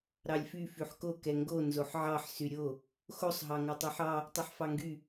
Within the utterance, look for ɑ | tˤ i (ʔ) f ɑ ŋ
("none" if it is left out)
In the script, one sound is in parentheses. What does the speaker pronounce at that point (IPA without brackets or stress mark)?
ħ